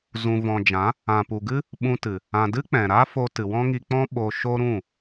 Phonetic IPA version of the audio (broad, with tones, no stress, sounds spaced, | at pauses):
z ũ˨ v ɔ̃˨ d͡ʒ ã˨˦ | ã˨ p u˨ ɡ ɨ˦ | ɓ ũ˧ t ɨ˨ | ã˨ d ɨ˦ k͡p ɛ̃˨ ɾ a˦ f o˧ t ɨ˨ w ɔ̃˦ ŋ i˧ k͡p ɔ̃˦ ɓ o˧ ʃ o˦ ɾ ũ˦˨